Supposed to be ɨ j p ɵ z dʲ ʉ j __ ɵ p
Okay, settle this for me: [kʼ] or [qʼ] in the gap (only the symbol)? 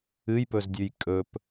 kʼ